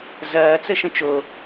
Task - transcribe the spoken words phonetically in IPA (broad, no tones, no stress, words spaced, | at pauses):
zɐːt͡səʃə̃ t͡ʃo